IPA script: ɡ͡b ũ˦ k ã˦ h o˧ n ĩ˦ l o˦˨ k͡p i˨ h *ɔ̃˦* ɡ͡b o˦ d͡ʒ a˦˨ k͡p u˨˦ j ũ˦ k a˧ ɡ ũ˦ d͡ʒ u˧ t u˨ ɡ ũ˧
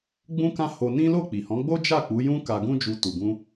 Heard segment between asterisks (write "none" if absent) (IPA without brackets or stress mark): ɔ̃˨˦